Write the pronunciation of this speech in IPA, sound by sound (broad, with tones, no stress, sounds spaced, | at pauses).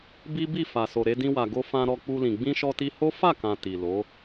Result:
b i˦ b i˦˨ f a˨ s o˨ ɾ e˧ d ĩ˧ w a˨ ɡ o˧ f ã˧ ɾ ɔ˧ k͡p u˧ l ĩ˨ ɡ͡b ĩ˧ ʃ ɔ˧ t i˧ h o˦ f a˦˨ k ã˨ t i˨ l o˨˦